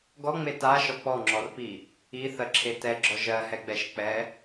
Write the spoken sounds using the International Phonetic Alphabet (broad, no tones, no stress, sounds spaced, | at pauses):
ɡ ɔ ŋ͡m e t a ʃ ɔ k͡p ɔ ŋ͡ǁ ɔ r p i | i θ ɜ ǁʰ e t ɛ ɡ͡ǁ ɔ ʒ ɜ h ɛ ɡ͡b ɛ ʃ k͡p ɛ